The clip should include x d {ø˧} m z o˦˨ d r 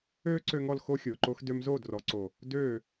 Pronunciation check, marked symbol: correct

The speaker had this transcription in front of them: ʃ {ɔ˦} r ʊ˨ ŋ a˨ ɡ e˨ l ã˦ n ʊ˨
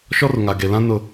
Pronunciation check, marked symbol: correct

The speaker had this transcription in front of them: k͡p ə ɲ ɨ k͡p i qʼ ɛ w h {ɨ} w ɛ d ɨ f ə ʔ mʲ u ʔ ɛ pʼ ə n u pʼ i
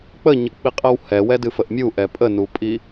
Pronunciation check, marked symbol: incorrect: ɛ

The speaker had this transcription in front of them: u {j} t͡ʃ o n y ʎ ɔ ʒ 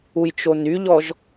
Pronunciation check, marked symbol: correct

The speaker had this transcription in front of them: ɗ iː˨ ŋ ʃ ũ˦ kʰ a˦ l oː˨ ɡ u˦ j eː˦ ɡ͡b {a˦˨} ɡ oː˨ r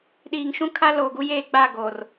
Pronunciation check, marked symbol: correct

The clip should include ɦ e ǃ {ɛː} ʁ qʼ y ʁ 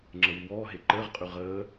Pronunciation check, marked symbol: incorrect: əː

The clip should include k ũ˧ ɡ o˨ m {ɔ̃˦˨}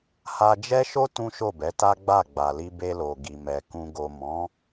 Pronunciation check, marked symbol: incorrect: ɔ̃˨˦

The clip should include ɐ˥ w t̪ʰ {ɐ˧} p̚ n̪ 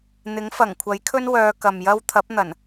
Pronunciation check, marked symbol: incorrect: ɐ˨˥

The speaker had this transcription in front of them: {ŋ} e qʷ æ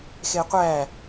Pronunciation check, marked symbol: incorrect: x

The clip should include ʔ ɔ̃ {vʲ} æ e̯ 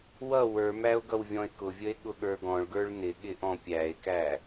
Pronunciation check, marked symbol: incorrect: pʲ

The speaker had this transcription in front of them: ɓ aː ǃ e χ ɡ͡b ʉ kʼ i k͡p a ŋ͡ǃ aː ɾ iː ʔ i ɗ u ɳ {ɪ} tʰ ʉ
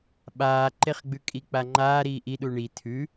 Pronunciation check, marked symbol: incorrect: i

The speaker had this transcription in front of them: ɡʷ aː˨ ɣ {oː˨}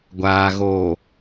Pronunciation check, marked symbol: correct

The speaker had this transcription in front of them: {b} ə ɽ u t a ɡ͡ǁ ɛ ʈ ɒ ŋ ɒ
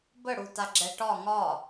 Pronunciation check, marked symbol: correct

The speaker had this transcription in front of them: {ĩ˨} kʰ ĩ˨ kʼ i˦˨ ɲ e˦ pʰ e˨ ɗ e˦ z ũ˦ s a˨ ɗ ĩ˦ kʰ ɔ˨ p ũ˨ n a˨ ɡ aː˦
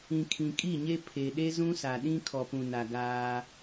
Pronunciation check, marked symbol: correct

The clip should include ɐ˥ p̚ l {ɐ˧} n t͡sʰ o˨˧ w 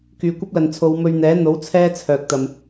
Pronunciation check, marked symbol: incorrect: ɐ˨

